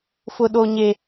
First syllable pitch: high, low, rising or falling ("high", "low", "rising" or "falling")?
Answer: low